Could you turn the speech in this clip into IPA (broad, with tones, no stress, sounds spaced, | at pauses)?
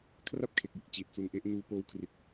kʰ r a˥˩ p̚ kʰ e˨˩ k̚ j ɯ˦˥ k̚ t͡ɕ iː˨˩ t̚ s u˧ n ʔ e˦˥ ʔ n uː˧ p oː˦˥ w kʰ r i˨˩ t̚